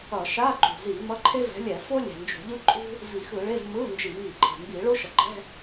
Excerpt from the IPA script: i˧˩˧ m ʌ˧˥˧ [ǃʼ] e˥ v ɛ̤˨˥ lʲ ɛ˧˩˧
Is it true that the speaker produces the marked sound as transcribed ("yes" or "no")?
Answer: no